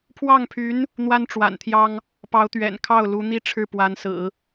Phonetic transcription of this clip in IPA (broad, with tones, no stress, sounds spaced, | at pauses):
pʰ w ɑ˥˩ ŋ pʰ y˧˥ n | n̪ w a˥ n ʈ͡ʂ w a̰˨˩ n t̪ʰ j ɑ˥ ŋ | p ɑ˧˥ ʊ̯ t̪ ɥ ɛ̰˨˩ n kʰ ɑ˥˩ ʊ̯ l u˧˥ n̪ i˥ ʈ͡ʂʰ ɻ̩˥˩ p w a˧˥ n s ɹ̩˨˩˦